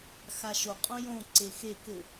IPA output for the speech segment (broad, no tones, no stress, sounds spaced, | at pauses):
x a ʃ o qʼ õ j õ ǀ e x e k ɘ